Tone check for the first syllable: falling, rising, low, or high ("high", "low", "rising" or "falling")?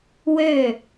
falling